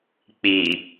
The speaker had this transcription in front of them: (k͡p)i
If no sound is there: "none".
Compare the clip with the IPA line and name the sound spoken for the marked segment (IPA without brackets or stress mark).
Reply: k͡p